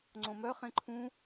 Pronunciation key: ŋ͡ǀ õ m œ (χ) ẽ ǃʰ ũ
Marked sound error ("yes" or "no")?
no